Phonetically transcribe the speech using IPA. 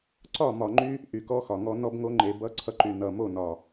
ǀ ɒ˦˨ m ɒ˨ ŋ͡ǃ y˦ | ʔ y˨ k ɔ˦ x ɒ˨ ŋ ɔ˦ n ɔ˦ b ŋ o˦ ŋ͡ǃ e˨ b ʌ˦ ǀʰ ʌ˦ ǃ y˨ n ʌ˨ m o˦˨ n ɒ˨

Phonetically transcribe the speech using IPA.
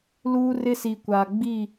l uː˦ r ɪ˦ s i˨ kʷ a˨ ɡ͡b i˦˨

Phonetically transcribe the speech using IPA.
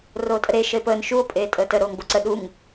r oː tʼ ə ɾ e ʃ ə e̯ p əː n ʃ u o̯ pʼ eː tʼ əː t ə ɾ oː ŋ b o ǀ ə ɗ u ŋ

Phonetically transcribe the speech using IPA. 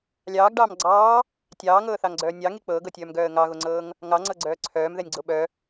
lʲ ɑː ɡ ɖ ɑː m ɡ͡ǀ ɑː | tʲ ɑː ŋ ɤː θ ɑ ŋ ɡ͡ǀ œː nʲ ɑ ŋ i k͡p ɤː ɡ ɤ tʲ œː m ɡ œː ə̯ ŋ ɑ ɣ o ŋ͡ǀ ɤː ŋ | ŋ ɑ ŋ͡ǀ ɤ ɡ͡ǀ œː ǀʰ œː m ð ɛ nʲ ɡ͡ǀ o ɓ œ

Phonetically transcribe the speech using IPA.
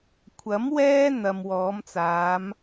kʷʰ ɐ˨˥ m w ɛː˥ n̪ ɐ˨ m w ɔː˨˧ m t͡s aː˨˧ m

